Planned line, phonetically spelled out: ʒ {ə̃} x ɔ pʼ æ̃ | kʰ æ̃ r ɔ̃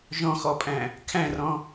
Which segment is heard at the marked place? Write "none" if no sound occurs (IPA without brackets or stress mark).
ɔ̃